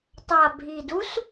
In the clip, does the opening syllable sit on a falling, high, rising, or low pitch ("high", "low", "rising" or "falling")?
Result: low